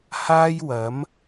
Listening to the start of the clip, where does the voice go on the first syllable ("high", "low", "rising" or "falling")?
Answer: high